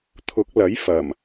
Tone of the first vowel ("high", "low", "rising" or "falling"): rising